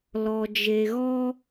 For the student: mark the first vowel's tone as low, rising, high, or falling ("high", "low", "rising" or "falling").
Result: low